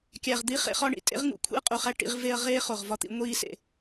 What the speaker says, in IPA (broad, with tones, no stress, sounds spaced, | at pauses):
kʲ æ˨ ʁ d̪ i˦ χ ḛ˧ χ ɒ˦ ɳ ḭ˨ tʼ ḛ˦ ʁ ŋ ṵ˨˦ kʷʰ ḭ˦ ɐ̯ qʼ u˨ χ æ˦ ʈ ḭ˧ ʁ v e˧ ɐ̯ ʁ eː˦ χ o˨ ʁ v ɒ˧ t̪ ḭ˧ ŋʷ iː˦ s ḛ˨